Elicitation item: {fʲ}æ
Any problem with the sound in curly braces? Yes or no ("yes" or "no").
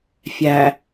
no